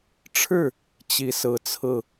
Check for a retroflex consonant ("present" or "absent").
present